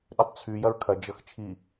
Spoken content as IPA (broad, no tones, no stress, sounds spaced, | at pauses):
ɗ ʏ tˤ t͡sʰ y j ɐ ɹ kʰ ɐ d͡ʒ ɤ x t͡ʃʰ i